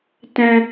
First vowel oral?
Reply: no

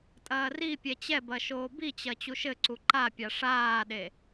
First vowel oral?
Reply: yes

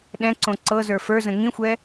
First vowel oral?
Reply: no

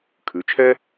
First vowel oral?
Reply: yes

